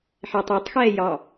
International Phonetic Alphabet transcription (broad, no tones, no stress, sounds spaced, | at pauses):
ħ ɛ tˤ o tˤ x ɛː j ɑ